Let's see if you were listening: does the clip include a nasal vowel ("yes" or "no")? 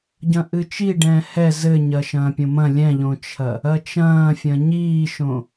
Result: yes